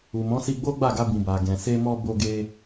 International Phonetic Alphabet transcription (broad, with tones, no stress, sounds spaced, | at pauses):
u˨ m ɔ̃˨˦ s i˧ ɡ͡b o˦ ɡ͡b a˦˨ ɡ a˧ b ĩ˨ b a˨ ɡ ɛ̃˨ s e˧ m ɔ˧ b o˧ ɡ e˧